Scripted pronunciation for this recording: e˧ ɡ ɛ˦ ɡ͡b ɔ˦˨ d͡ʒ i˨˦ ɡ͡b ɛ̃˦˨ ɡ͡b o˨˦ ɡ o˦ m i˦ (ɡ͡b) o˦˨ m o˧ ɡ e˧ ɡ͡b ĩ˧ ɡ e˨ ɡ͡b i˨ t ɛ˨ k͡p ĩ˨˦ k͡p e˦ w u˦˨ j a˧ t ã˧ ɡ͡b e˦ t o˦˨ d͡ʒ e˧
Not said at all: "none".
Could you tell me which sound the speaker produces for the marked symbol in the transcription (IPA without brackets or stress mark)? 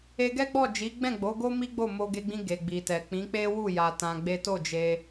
ɡ͡b